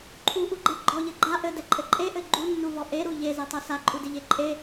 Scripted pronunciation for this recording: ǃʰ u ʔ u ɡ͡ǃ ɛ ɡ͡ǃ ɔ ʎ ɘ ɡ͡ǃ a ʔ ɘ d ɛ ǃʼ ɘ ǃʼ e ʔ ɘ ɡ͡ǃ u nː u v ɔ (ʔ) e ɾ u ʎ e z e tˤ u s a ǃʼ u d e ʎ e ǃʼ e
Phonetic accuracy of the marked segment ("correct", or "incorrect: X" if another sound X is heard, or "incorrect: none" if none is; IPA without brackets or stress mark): correct